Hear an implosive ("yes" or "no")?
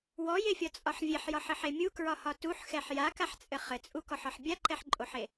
no